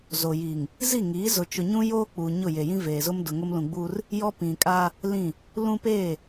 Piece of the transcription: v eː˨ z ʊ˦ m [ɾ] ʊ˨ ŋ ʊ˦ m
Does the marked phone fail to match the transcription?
yes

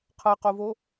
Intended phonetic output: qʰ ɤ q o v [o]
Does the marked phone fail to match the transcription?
no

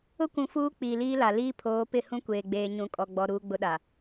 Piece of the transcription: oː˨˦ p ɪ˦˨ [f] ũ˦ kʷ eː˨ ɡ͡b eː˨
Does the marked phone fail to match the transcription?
yes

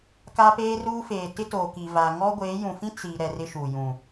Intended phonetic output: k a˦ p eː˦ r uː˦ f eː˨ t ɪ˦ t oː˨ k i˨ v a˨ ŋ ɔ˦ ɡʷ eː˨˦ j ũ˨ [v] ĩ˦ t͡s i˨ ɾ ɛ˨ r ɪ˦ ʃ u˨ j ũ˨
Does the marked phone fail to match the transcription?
yes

